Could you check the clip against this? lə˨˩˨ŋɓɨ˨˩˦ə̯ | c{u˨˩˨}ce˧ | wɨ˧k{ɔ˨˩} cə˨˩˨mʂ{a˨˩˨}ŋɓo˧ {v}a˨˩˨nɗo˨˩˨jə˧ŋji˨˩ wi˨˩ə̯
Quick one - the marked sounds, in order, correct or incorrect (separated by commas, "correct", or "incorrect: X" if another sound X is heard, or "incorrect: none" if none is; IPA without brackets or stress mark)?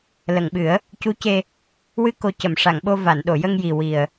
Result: incorrect: u˧˥, incorrect: o˨˩, correct, correct